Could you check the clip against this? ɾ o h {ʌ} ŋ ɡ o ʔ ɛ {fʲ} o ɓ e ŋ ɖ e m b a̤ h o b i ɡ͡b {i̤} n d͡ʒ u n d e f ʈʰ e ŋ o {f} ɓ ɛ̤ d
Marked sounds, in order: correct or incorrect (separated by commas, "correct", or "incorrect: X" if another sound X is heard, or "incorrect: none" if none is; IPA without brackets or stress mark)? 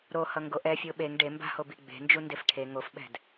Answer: correct, correct, incorrect: e̤, correct